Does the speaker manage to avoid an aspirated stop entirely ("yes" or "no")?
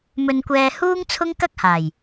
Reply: no